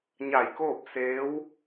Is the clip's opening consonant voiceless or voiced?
voiced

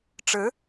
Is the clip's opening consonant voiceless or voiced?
voiceless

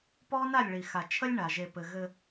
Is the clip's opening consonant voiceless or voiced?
voiceless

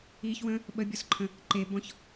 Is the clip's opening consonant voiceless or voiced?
voiceless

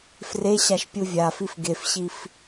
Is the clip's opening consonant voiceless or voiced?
voiceless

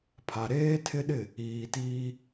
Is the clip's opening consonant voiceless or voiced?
voiceless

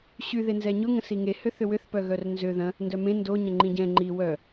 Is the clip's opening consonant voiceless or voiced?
voiceless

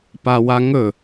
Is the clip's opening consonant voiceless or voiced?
voiceless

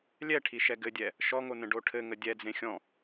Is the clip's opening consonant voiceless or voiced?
voiced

